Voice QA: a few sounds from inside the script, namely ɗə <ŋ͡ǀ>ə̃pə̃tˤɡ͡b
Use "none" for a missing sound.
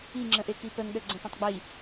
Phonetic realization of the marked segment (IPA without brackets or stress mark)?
ɡ͡ǀ